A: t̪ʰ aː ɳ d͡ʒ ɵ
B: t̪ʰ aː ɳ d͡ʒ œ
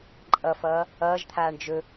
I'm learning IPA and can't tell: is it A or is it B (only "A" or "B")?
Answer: A